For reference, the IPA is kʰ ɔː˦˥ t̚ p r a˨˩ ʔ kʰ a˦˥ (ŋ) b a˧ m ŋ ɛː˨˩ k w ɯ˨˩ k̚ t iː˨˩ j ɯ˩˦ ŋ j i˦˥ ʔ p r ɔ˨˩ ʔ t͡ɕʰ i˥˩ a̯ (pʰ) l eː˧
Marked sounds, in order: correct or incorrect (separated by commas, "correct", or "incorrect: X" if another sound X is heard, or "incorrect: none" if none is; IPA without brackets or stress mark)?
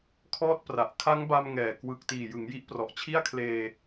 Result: correct, incorrect: kʰ